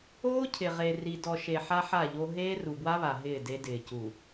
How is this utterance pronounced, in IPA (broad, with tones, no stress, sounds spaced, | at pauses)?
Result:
oː˦ cʰ ɪ˨ ʁ e˨ r i˨ d ɔ˨ ʃ e˨ ħ a˦ ħ a˦˨ ʎ o˦ ɦ eː˦ r u˨ b w a˦ β a˨ ɦ ɪː˦˨ d e˦ d ɪː˨ c u˨